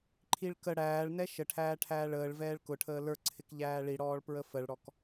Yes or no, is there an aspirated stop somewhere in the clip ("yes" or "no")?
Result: yes